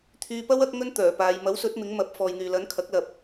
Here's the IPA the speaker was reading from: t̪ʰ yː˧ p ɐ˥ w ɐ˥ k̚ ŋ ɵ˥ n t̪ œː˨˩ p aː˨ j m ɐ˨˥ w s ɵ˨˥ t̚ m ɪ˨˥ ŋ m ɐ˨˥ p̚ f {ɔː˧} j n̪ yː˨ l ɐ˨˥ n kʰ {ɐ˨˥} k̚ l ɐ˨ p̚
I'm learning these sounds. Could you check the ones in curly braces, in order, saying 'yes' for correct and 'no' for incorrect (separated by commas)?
no, yes